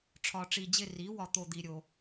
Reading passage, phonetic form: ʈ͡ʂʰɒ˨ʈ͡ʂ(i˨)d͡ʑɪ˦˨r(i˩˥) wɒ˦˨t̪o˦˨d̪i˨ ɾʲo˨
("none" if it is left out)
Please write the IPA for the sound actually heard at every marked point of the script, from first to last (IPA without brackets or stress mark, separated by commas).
i˨, i˩˥